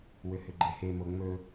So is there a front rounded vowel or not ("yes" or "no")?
yes